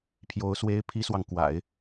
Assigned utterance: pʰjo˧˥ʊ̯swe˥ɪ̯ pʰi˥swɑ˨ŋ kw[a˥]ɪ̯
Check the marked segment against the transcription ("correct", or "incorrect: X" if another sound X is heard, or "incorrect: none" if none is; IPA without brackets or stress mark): incorrect: a̰˨˩˦